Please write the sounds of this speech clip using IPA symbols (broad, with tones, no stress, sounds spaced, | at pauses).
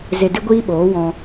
z e˨ d ɨ˧ ɡʷ iː˧ ɓ oː˨˦ w ɔ̃˧